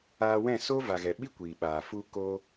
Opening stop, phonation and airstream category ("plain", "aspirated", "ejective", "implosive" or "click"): implosive